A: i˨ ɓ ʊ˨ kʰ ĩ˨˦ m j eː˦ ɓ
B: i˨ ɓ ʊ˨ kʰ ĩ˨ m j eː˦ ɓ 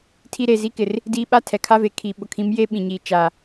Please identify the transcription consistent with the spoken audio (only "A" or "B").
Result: A